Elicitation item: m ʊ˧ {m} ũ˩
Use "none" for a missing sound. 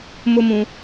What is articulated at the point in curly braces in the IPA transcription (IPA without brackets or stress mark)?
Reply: m